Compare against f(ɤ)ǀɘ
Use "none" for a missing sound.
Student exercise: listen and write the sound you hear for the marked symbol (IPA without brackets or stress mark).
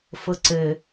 ɤ